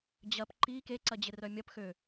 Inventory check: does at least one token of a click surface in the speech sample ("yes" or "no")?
yes